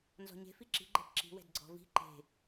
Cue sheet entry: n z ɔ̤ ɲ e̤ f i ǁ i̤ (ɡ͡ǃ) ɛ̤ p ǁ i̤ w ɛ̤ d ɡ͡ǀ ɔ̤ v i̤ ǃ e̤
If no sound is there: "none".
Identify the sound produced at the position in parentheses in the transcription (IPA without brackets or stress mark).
ɡ͡ǃ